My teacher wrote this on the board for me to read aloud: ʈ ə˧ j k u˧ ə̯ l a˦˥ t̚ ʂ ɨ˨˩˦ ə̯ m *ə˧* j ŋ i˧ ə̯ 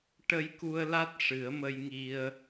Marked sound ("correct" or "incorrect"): correct